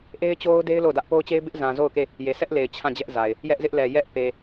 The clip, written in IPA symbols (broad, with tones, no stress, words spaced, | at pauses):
ʔe˦ɪ̯t͡ɕo˦ʊ̯de˦ɪ̯ lo˦˨ʊ̯dä˦ʔ po˦ʊ̯t͡ɕe˦ɪ̯ bɪ˦ʔzã˨ zo˦˨ʊ̯ke˦˨ | je˨sʰɛ˦ʔle˨ɪ̯ t͡ɕʰã˦˨d͡ʑɛ˦ʔza˨ɪ̯ | jɛ˦ʔzɪ˦ʔlɛ˨ jɛ˦ʔ pe˨